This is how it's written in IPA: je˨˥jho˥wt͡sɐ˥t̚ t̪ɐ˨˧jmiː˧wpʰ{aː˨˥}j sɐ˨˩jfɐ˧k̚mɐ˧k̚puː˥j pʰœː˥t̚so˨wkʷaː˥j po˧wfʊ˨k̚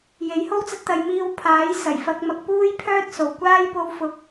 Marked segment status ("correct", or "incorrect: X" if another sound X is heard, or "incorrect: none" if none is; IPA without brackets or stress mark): correct